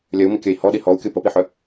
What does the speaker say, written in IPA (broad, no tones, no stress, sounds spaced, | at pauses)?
lʲ œ u̯ m i kʲ œ i̯ h ɔ ɗ i h ɔ u̯ kʲ o p ə p i ħ œ